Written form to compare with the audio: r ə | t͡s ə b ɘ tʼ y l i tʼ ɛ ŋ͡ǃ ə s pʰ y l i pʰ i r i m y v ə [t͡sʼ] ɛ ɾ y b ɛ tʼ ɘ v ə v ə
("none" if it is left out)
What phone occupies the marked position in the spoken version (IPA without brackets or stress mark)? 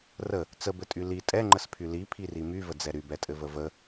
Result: d͡z